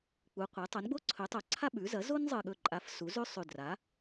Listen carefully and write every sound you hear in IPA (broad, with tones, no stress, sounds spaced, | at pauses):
k͡p u˩˥ qʷ e˩˥ tˤ o˩˥ n ɡ͡b o˥ ǀʰ ɵ˩˥ tˤ o˧˩ ǀʰ a˥ ɓ ʉ˩˥ z ɐ˩˥ z o˥ n zˤ ɨ˧˩ ɠ ɵ˧˩ ǃʼ a˩˥ f s u˩˥ z ʉ˥ sˤ ʉ˧˩ d r a˩˥